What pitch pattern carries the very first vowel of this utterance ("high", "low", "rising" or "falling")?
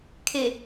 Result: low